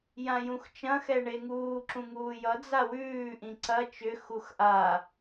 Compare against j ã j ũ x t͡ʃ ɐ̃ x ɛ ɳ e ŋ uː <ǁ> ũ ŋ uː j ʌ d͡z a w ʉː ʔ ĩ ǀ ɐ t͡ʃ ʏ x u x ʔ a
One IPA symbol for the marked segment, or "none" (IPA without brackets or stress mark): ǁ